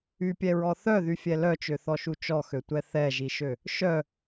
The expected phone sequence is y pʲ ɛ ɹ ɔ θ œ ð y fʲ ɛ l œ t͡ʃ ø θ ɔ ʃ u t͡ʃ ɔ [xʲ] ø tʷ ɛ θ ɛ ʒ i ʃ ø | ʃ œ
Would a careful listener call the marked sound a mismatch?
yes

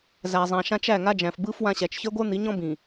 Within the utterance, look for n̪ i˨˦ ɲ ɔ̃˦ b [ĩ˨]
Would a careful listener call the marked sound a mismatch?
no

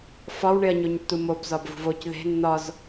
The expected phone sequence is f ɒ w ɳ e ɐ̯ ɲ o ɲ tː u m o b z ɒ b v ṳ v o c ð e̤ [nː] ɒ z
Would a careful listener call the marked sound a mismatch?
no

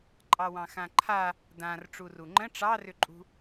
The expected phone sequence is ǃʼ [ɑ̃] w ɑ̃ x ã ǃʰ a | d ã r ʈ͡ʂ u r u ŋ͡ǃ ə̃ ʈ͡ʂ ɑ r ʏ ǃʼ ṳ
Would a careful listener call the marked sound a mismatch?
yes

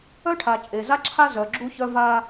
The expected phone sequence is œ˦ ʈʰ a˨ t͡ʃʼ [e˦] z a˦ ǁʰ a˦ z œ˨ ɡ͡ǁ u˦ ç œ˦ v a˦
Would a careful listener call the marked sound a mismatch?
yes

